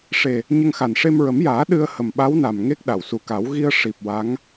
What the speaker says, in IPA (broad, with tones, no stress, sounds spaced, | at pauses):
ʂ e˨˩ | ɲ ə˧ ŋ x a˨˩ n ʂ e˧ m ɹ ə˨˩˦ m j aː˨˩˦ ɗ ɨ˧ ə̯ h ə˨˩ m ɓ a˧˥ w n a˨˩ m ŋ e˦˥ k̚ ɗ a˨˩˨ w s u˨˩˦ k a˨˩˦ w ɣ i˧ ə̯ ʂ i˨˩ p̚ w a˧˥ ŋ